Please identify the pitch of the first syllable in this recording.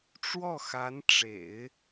falling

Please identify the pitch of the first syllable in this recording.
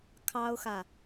high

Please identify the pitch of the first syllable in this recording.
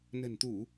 low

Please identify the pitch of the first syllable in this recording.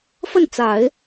falling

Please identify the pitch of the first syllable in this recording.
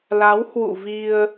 rising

